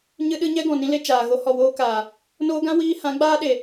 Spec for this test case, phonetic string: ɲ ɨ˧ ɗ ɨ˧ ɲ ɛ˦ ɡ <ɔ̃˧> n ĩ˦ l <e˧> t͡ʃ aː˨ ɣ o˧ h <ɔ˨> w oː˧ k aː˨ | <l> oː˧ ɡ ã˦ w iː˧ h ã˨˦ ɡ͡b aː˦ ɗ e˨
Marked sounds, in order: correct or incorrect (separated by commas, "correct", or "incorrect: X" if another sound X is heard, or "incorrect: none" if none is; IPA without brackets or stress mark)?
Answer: incorrect: ɔ̃˨, correct, correct, incorrect: n